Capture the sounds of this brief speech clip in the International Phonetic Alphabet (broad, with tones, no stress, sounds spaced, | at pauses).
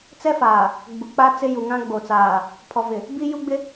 t͡s ɛ˦ f aː˨ | ɡ͡b u˨ k͡p a˦ t͡s ɪ˦ j u˨ ŋ ã˦ ɡ͡b o˨ t͡s aː˨ | pʰ ɔ˨ v ɪ˨ | b i˦ j u˦ ɡ͡b ɪ˦